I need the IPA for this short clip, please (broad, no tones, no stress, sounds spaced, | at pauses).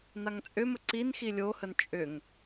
n a ŋ t͡sʼ ʏ m ə ǀ i n x i lʲ o h ə n t͡ʃʼ ʏ ŋ